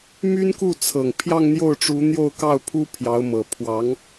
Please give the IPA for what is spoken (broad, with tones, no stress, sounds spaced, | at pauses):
m y˥ n k u˥˩ t͡sʰ ɤ˨˩ ŋ pʰ j ɑ˥˧ ŋ n̪ j o˥˩ ʊ̯ ʈ͡ʂ u˧˥ n̪ j o˥˧ ʊ̯ k ɑ˥˩ ʊ̯ pʰ u˥ pʰ j ɑ˧˥ ʊ̯ m ɤ˨˩ pʰ w ɑ˧˥ ŋ